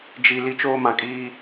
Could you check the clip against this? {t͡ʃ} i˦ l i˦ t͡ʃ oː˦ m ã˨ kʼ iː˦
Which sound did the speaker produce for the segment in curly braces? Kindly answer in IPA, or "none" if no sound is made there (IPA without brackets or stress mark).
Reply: d͡ʒ